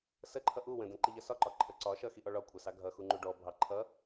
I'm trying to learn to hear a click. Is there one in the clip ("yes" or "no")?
yes